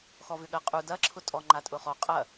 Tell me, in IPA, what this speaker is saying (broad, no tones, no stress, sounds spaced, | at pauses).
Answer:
x ɔ v ʏ ɠ ɜ qʼ u d ɐ ǁʰ ʊ tʼ ɔ ŋ͡ǃ a tʼ ʊ χ ɔ qʼ ɐ